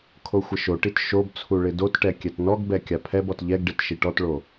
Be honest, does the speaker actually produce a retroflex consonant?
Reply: yes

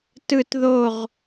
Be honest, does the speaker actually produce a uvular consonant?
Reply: yes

